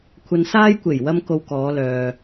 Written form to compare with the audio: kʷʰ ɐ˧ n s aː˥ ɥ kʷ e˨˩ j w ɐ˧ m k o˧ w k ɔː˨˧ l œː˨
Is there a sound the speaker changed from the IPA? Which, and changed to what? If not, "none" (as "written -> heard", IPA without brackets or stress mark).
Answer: ɥ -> j